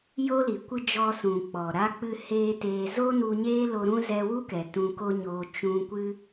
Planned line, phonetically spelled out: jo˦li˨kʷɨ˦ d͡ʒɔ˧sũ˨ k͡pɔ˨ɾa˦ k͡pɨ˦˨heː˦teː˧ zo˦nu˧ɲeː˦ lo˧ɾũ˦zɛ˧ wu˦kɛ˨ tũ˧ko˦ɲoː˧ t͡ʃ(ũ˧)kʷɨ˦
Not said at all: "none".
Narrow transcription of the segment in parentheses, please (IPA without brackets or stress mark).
ũ˧